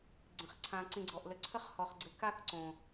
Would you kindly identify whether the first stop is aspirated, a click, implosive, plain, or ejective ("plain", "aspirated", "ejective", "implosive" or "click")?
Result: click